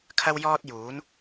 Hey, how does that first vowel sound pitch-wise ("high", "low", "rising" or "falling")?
high